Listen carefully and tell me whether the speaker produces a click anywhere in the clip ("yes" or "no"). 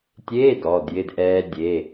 no